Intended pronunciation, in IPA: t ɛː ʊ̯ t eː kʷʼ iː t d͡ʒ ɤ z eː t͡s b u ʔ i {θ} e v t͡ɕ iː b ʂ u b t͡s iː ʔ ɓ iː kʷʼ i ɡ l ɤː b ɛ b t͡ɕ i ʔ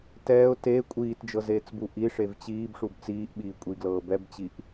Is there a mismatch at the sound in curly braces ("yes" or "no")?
yes